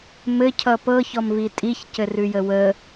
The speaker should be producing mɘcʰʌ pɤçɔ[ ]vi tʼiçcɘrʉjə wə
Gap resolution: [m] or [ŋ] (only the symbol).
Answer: m